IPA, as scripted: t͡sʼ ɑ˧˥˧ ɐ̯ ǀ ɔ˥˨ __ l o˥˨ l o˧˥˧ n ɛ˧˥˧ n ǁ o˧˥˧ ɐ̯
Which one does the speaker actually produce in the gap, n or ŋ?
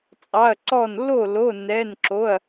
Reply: n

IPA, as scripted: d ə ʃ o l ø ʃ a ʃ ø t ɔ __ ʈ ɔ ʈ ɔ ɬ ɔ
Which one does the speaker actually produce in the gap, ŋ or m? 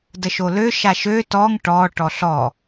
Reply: ŋ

